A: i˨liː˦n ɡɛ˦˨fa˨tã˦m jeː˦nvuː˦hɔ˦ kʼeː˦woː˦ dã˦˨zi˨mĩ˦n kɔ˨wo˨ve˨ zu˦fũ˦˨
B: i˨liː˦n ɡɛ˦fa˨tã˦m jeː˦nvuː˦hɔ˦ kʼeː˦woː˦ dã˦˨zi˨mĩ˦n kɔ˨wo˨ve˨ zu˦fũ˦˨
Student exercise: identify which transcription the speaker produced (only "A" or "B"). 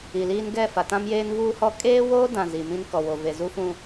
A